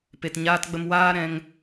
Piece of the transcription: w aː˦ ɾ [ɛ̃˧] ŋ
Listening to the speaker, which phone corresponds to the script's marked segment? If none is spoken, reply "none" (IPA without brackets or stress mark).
ɛ̃˧